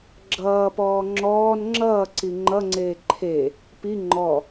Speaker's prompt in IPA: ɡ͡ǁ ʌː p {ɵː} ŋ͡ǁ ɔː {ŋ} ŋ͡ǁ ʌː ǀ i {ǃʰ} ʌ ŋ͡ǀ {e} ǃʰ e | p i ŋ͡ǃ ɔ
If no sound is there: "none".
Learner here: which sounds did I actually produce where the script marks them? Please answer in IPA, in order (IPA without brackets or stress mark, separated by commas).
ɔː, n, ŋ͡ǃ, eː